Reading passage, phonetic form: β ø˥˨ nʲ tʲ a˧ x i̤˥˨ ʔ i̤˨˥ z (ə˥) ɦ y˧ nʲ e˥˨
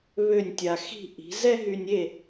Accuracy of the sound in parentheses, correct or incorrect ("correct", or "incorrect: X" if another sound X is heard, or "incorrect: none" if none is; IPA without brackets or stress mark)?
incorrect: ɛ˥